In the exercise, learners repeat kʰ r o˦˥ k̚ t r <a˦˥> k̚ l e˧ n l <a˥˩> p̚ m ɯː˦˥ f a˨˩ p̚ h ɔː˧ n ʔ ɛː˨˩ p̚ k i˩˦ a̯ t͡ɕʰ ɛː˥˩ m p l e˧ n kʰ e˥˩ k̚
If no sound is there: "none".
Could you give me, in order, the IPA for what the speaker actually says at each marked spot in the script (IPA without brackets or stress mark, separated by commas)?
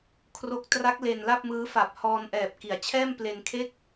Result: a˦˥, a˥˩